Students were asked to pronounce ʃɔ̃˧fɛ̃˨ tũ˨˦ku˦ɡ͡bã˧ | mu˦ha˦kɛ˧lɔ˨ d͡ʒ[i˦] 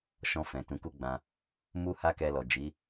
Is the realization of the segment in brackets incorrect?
yes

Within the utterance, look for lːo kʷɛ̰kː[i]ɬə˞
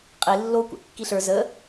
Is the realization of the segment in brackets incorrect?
no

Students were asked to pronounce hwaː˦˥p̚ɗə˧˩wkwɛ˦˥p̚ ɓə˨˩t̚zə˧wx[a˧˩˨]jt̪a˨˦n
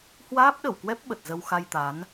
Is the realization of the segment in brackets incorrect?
yes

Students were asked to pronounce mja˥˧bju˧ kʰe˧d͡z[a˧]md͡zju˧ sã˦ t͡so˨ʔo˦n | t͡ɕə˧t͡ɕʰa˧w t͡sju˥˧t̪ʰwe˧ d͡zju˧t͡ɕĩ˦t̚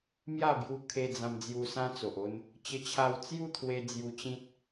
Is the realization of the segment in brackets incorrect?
yes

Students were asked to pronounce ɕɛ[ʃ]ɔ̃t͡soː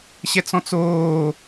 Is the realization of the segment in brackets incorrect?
yes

